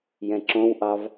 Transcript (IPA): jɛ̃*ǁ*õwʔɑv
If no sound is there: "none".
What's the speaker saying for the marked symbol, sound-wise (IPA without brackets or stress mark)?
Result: ǁ